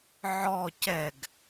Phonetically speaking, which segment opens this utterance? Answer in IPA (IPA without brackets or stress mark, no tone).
ʕ